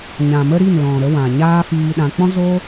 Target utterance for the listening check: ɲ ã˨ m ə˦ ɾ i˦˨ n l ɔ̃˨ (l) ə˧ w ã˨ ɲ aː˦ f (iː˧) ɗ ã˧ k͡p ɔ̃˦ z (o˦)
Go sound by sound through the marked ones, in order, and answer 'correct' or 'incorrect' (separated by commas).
incorrect, correct, correct